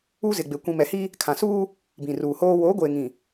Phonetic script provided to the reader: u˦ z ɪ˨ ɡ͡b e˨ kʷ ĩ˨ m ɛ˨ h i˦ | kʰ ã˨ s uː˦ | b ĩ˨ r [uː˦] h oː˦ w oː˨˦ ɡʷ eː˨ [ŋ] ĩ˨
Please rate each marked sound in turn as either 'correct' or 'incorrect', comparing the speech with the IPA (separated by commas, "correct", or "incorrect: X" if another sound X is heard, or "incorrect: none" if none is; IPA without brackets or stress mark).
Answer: incorrect: uː˨, correct